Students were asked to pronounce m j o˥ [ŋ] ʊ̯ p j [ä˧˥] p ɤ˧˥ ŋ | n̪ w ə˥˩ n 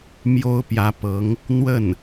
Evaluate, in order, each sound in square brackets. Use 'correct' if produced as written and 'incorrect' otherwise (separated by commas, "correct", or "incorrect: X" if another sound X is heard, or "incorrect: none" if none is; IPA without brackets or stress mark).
incorrect: none, correct